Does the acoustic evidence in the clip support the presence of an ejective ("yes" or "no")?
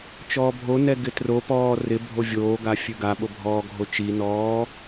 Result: no